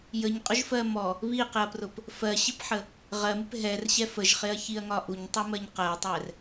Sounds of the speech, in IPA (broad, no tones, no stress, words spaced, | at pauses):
jəɲqʼʊʒfɜ mɔ | βiqɪɐ̯prʊp | fɜɕɪpħə | ʁɜmɪp ɦɛrɕɛ fəʒχɪɐ̯çiɐ̯ŋɒ ʔuɲtˤumɜɲ qɜtˤɛr